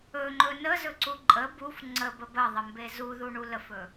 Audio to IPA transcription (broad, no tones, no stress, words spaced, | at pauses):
ɵŋ͡ǃɵ nəzɵǀu ǃʼə buf ŋ͡ǀəbə bəðˤəmbe zuðuɳu ləfɵ